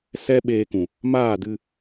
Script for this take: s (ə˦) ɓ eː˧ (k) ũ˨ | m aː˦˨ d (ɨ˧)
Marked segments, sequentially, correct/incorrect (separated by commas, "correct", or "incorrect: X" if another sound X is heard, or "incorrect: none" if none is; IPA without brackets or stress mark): incorrect: ɛ˦, correct, correct